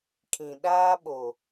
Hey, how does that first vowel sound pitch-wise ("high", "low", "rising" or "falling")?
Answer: low